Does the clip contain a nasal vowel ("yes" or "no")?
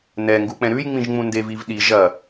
yes